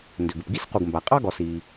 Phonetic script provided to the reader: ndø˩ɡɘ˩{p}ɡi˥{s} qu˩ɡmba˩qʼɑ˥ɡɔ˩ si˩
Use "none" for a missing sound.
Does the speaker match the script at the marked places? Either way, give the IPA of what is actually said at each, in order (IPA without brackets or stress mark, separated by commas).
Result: p, s